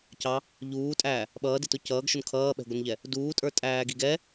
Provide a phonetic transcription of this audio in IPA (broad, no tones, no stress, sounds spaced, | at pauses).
c ɑ | ʎ uː tʼ æː | ɓ ʌː d ɪ t ʊ c ʌː ɡ ʃ ʊ n kʰ ʌː ɓ ɛ̤ ɡʷ ə n ʎ ɛ | d uː tʼ ə˞ tʼ æː ɡ i ɡ ɛ